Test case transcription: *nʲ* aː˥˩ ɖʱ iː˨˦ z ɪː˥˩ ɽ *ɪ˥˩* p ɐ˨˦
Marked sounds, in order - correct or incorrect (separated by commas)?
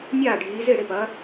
correct, correct